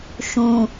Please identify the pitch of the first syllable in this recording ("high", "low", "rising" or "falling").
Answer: low